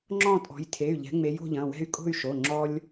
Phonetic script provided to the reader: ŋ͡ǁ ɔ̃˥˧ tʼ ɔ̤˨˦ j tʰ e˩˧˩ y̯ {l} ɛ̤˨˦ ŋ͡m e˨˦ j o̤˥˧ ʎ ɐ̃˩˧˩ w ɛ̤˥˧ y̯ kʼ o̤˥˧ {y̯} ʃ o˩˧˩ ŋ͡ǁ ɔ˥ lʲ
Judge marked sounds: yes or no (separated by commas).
no, yes